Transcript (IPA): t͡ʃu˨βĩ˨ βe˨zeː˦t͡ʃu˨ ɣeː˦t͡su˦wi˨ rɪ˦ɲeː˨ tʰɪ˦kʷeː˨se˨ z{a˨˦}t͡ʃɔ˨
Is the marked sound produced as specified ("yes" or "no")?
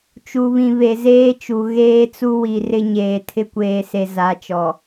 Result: yes